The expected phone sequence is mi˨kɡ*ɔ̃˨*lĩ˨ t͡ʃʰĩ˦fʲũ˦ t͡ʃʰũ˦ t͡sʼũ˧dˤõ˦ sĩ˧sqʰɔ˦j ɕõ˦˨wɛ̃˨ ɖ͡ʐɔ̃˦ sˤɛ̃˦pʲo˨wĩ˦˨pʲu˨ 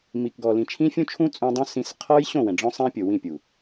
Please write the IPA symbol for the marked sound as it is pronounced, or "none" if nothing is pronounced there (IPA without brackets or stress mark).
ɔ˨